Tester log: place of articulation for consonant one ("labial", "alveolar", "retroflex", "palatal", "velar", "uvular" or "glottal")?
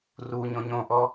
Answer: alveolar